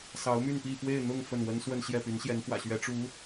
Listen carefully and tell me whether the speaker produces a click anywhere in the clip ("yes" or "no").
no